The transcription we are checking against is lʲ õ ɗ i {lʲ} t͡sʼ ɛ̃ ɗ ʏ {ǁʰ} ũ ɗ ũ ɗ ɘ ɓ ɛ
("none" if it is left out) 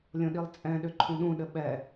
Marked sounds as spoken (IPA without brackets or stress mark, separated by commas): lˠ, ǃʰ